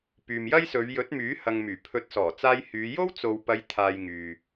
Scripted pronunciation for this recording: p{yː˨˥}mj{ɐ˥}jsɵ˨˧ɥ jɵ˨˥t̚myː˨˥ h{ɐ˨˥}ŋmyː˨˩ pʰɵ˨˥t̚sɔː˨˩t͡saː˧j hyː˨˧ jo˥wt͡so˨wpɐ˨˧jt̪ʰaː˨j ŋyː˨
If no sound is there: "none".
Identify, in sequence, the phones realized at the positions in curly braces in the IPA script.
yː˨, ɐ˥, ɐ˨

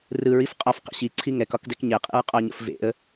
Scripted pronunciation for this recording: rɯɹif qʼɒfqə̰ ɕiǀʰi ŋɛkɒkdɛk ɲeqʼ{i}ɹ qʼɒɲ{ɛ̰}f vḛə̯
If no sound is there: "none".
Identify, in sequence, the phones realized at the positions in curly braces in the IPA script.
ḭ, ə̰

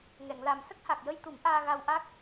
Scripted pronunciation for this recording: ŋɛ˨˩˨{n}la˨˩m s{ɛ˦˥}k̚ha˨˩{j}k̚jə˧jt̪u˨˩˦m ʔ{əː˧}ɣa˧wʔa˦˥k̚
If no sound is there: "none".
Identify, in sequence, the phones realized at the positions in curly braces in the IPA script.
ŋ, ə˦˥, none, aː˧

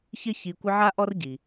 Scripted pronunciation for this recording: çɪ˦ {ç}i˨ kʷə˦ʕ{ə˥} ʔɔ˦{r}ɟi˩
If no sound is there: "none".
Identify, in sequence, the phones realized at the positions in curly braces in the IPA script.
ç, a˥, r

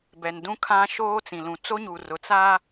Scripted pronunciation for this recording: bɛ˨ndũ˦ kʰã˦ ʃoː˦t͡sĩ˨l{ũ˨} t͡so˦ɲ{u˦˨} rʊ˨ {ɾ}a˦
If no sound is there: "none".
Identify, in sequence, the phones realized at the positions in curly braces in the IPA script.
ũ˨, u˨, t͡s

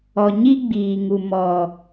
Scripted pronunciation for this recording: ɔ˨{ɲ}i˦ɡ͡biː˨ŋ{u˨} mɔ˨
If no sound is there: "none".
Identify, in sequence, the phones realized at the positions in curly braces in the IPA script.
ɲ, u˨

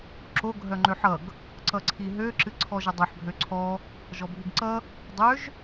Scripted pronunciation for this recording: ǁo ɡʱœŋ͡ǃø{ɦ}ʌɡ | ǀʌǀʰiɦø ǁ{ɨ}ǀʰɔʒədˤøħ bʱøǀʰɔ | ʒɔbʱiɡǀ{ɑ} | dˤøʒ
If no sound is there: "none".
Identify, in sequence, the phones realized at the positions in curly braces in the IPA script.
ħ, ɨ, ʌ

